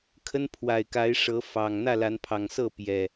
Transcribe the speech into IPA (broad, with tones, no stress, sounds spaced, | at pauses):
kʰ ə˦ n pʰ w a˨˩ ɪ̯ k a˨˦ ɪ̯ ʂ ɤ˨˦ f ɑ˨˩ ŋ n̪ ä˥˨ l a˨˦ n pʰ ɑ˨˩ ŋ s ɤ˥˨ p j ɛ˨˩